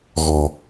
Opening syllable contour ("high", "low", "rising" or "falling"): low